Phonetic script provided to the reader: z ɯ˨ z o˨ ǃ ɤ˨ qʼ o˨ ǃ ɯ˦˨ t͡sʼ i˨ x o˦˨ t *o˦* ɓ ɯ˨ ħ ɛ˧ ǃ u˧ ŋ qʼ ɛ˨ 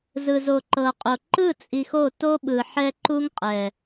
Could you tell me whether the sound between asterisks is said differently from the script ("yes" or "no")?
no